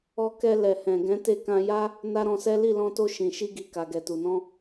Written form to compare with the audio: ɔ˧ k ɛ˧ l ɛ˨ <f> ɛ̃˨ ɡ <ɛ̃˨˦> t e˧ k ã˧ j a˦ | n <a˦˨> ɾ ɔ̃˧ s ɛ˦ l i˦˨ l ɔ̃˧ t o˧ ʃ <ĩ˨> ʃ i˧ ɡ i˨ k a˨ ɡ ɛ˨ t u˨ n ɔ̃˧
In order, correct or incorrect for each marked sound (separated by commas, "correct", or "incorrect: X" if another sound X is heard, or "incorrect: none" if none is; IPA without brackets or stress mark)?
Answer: incorrect: h, correct, incorrect: a˦, correct